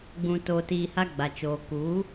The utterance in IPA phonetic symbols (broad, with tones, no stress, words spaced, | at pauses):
ɡ͡bũ˧ to˧tiː˧ha˦ ɡ͡ba˨t͡ʃoː˨ ku˨˦